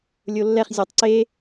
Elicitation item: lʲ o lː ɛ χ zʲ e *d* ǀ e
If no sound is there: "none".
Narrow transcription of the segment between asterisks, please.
tˤ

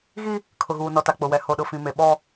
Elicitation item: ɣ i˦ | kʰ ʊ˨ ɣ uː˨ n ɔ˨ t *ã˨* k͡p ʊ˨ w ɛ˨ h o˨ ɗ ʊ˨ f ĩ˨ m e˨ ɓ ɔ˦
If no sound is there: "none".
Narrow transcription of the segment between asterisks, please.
a˨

